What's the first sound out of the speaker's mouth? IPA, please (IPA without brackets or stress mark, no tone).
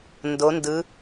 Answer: n